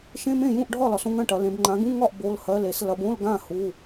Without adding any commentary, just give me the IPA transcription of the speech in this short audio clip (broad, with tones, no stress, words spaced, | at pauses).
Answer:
ʃẽ˧˥˧mẽ˥˨ jũ˥˨ʔɖʱɒ˥˨lɒ˨˦s õ˧˥˧ŋɐ̃˥˨ʈɐ˨˦lẽ˨˦b ŋ͡ǃã˨˦ɡũ˧˥˧ŋɒ˥˨ʔ bo˧˥˧lhɜ˧˥˧l e˨˦s lɐ˨˦bõ˧˥˧lɡã˥˨ hu˧˥˧